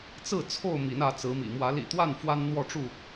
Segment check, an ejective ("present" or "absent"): absent